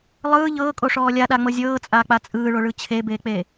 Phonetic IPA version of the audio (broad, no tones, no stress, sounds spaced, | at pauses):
lˠ ɯː ʎ ɤː kʼ o ʂ ɔː lʲ a ɗ a ŋ͡m ɤ zʲ ɤː t͡sʼ aː k͡p a t͡sʼ ɯː ɭ o ɭ ɯ t͡ɕʰ e b eː k͡p e